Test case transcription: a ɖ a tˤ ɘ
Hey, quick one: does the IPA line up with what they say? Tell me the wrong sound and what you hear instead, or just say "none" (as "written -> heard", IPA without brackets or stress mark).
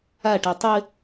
ɖ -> ʈ